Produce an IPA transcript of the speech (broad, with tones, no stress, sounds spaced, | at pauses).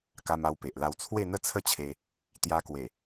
k a˧ m a˧ w p e˨ ʔ l a˧ w t͡sʰ w e˥˧ n̪ ə˥˧ t͡sʰ ə˥˧ t͡ɕʰ e˧ | t̪ j a˧ k w e˨˩